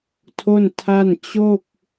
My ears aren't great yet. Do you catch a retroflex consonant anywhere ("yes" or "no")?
no